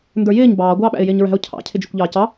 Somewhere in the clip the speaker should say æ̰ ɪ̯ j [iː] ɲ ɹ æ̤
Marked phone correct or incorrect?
incorrect